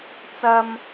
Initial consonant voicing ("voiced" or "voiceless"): voiceless